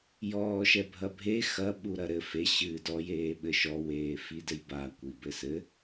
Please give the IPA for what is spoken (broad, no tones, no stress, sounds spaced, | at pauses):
j ɔː ʃ ɛ bʱ ɐ bʱ e x ɐ ɓ u ɾ ɐ ɾ ɘ f e ɕ ɨː d ɔ j eː ɓ ɘ ʃ ɔ w eː f i d ɘ j b a kʷ i b ɘ s ɘ